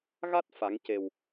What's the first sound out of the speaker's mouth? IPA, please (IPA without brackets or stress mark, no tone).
ɣ